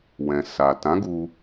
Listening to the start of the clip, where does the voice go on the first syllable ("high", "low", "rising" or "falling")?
low